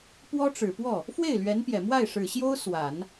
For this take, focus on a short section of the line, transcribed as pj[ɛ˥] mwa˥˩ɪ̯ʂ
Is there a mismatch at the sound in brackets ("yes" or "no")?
yes